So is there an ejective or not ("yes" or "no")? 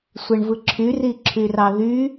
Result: no